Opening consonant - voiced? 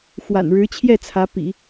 no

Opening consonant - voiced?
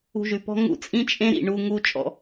yes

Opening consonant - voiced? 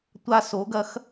no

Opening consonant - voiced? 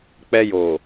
no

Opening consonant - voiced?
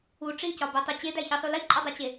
no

